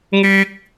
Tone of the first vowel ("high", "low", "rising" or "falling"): high